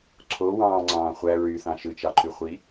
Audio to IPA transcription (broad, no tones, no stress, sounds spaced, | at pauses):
ǀʰ o w ɑ̃ː ŋ͡ǀ ɑ̃ː χʷ æ ɹ y θ ɑ̃ ʃ ɯ t͡ʃ ɑ ǃ y χʷ i